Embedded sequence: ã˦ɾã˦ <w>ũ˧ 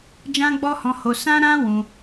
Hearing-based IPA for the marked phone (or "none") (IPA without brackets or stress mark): w